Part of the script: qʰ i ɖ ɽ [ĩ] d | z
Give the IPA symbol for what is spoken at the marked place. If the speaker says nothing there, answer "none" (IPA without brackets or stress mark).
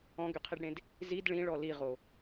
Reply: ẽ